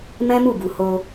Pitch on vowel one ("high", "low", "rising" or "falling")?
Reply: high